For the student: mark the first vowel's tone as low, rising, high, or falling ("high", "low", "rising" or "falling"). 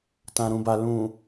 low